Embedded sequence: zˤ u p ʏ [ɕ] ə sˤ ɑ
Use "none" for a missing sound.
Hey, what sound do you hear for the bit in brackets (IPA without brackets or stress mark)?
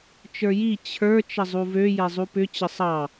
t͡ɕ